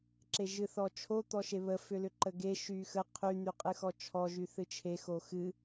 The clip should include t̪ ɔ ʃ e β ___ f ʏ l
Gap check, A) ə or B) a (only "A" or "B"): A